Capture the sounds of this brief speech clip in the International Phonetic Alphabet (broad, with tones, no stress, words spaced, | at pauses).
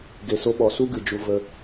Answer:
ɡe˨so˧ɓɔ˨su˦ ɡɨ˨d͡ʒu˧ və˧